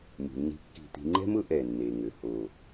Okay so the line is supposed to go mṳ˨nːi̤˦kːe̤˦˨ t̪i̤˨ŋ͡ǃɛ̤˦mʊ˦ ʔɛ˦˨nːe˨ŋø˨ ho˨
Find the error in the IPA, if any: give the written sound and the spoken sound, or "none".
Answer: e̤˦˨ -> i̤˦˨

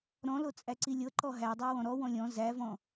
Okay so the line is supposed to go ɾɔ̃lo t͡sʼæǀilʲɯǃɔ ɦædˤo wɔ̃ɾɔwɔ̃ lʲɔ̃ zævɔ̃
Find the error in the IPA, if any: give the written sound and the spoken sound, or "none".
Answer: ɯ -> ɤ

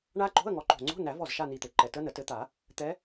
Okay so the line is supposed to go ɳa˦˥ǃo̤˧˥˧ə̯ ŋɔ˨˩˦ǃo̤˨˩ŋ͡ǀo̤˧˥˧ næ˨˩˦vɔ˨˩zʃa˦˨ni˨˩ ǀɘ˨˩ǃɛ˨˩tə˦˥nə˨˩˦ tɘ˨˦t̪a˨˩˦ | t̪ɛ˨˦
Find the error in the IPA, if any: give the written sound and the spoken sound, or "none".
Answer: ǀ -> t̪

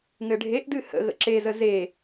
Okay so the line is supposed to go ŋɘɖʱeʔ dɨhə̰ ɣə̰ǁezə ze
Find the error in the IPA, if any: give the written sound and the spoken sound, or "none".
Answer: none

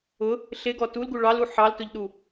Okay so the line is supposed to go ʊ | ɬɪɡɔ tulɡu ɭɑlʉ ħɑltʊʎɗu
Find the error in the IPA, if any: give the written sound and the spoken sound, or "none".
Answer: ʉ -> u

